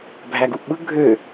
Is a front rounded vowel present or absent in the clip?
present